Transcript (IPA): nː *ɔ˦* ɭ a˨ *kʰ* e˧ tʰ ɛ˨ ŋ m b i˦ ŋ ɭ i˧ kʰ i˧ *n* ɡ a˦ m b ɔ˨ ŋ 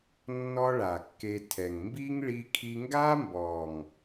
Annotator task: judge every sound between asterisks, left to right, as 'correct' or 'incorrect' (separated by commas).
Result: correct, incorrect, incorrect